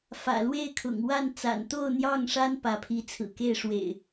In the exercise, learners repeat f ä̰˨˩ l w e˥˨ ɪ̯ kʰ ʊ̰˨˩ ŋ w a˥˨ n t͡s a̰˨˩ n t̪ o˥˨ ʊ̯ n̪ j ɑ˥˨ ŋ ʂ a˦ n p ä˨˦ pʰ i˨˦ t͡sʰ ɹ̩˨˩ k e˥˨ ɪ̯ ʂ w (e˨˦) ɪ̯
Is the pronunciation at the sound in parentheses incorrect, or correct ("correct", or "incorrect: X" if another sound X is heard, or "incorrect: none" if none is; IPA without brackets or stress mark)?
incorrect: ḛ˨˩